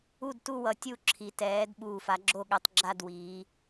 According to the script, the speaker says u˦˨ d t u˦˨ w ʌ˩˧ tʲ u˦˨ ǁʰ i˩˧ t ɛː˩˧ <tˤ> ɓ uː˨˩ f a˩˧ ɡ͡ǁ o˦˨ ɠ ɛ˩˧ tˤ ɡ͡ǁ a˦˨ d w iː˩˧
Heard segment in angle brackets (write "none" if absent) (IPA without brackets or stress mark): d